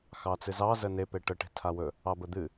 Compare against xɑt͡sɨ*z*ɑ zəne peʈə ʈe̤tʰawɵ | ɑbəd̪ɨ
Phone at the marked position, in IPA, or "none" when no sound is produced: z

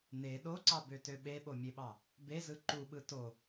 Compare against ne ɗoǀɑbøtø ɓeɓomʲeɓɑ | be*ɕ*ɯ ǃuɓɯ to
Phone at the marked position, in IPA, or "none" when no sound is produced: z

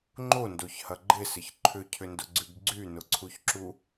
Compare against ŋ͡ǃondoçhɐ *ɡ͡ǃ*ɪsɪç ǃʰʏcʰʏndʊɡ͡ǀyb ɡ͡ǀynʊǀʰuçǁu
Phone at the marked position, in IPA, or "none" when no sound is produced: ɡ͡ǃ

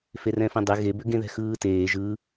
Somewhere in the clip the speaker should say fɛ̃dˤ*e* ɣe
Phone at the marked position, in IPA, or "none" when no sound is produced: e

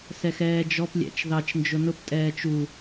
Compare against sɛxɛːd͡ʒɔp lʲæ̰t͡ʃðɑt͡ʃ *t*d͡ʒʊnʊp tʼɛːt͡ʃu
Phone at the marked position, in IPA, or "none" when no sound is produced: n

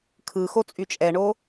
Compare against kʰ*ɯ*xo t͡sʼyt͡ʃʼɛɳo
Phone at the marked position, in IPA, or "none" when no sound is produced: ɯ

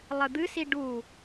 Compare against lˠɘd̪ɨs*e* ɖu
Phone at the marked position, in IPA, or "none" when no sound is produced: i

